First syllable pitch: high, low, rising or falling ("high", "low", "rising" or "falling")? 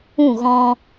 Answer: falling